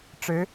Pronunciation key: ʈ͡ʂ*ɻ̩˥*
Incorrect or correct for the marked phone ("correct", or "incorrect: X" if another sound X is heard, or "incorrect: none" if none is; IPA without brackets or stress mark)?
incorrect: ɻ̩˧˥